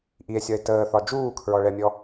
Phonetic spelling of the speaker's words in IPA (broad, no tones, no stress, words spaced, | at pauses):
ʔie̯sʲɒe̯ təːθɒ d͡ʒuːkʰɹɔɭɛmʲɔ